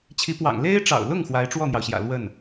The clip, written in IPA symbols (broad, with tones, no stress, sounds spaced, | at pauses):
t͡ɕʰ i˧˥ p w ɑ̰˨˩ ŋ l e˥ ɪ̯ ʈ͡ʂ ɑ̰˨˩ ʊ̯ l ʊ˥˩ ŋ x w a˧˥ ɪ̯ ʈ͡ʂ w ɔ˥˩ n̪ j ɑ˩ ʊ̯ ɕ j ä̰˨˩ l w ə˥˩ n